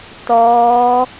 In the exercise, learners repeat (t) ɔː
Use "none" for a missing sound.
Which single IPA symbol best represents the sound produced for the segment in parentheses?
t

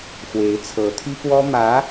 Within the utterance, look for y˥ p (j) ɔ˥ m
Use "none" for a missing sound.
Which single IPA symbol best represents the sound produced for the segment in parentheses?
w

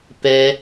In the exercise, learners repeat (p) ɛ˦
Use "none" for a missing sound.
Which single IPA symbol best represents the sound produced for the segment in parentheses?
p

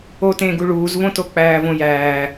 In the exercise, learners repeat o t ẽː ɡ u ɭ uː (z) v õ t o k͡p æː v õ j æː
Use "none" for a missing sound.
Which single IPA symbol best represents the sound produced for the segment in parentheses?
z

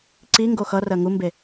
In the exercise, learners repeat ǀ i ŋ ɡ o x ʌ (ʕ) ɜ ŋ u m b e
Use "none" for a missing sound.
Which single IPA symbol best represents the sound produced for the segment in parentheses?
r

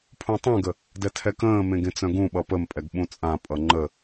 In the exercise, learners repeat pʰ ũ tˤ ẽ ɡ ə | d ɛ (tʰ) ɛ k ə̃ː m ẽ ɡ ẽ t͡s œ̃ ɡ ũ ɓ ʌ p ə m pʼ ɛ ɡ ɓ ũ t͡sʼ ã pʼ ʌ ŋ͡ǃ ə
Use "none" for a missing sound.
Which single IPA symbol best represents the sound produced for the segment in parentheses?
tʰ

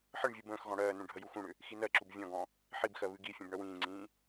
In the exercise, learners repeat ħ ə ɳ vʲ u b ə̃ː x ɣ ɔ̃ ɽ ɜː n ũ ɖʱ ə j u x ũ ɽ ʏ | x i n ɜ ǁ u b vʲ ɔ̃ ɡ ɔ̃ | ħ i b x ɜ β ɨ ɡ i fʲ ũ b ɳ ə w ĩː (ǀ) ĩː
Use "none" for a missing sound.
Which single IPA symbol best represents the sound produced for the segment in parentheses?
ŋ͡ǀ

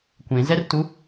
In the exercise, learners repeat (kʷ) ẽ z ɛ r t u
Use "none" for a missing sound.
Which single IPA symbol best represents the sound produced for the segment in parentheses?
kʷ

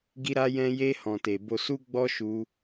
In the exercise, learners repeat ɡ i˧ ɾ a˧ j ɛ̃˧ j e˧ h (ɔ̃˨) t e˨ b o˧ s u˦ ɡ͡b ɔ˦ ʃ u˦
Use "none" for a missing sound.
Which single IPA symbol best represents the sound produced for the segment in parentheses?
ɔ̃˨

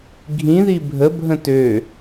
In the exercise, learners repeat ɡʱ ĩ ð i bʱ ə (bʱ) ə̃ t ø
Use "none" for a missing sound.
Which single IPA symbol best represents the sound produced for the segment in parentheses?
bʱ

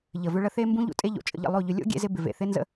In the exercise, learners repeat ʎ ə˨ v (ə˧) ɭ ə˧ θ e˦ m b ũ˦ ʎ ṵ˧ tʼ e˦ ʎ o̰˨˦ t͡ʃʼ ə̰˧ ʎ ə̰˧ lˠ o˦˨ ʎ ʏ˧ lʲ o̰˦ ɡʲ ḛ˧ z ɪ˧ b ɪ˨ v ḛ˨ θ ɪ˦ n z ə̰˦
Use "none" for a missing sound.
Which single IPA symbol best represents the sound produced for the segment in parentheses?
ʏ˧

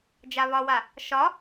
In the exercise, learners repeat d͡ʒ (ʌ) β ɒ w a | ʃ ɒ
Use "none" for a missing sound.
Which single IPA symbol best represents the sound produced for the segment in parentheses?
a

